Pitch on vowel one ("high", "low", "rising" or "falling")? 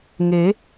rising